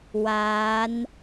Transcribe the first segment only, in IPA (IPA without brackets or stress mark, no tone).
w